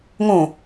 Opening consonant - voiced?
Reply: yes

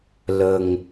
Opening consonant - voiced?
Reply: yes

